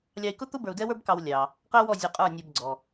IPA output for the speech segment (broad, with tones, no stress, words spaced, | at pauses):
lʲɑ˧i̯kʊ˥t̪ʊ˥ bə˞˧u̯dɛ˥wə˞˥bkɑ˧w lʲɑ˩ | qɛ˥wɔ˥˩ zʲʊ˧qʼə˞˥˩nʲɔ˧b ɡ͡ǀɔ˩